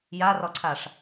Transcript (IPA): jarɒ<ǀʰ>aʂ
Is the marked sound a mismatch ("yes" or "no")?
no